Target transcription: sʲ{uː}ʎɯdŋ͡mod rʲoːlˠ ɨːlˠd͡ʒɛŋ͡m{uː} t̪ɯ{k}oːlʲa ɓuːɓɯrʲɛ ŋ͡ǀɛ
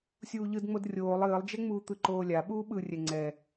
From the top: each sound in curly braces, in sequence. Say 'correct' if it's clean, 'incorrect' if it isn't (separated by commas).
correct, correct, incorrect